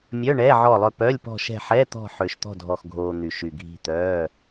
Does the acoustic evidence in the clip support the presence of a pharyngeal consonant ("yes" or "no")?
yes